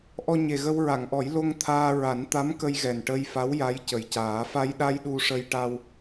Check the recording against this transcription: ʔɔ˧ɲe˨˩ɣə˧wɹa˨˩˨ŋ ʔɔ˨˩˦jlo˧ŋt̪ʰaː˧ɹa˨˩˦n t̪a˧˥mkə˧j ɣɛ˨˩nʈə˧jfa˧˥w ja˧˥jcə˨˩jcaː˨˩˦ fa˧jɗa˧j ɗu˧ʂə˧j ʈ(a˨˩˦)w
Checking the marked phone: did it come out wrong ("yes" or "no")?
yes